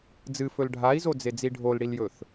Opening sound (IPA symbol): d͡z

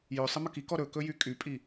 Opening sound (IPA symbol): j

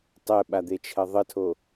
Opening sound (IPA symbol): tˤ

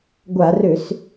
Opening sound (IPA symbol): ɡʷ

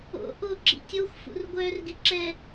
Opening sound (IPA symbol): o̰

